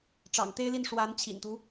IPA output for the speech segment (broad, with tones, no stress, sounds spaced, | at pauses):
ʈ͡ʂ ɑ̰˨˩ ŋ t̪ e˥ ɪ̯ l i˥˩ n ʂ w a˧˥ n t͡ɕʰ ḭ˨˩ n t̪ u˦